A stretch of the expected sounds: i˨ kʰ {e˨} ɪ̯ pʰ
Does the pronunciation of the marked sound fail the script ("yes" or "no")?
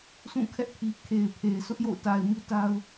no